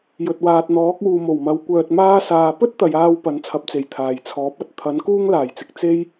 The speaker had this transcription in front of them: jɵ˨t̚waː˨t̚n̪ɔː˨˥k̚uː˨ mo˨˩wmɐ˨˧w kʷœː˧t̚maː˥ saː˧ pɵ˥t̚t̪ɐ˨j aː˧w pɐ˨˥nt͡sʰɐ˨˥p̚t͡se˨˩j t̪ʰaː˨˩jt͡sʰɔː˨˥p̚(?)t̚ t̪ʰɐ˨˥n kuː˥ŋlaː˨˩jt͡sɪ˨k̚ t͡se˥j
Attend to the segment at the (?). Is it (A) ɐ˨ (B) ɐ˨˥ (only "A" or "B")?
B